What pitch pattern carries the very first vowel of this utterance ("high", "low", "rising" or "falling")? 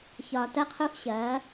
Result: low